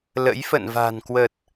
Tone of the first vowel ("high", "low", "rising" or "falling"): rising